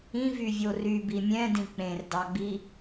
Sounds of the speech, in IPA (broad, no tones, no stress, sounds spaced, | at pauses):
ĩ v y vʲ o r y b i mʲ ɛ̃ d ĩ k͡p ẽ r d ɑ ɡ͡b i